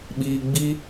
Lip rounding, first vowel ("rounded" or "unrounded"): unrounded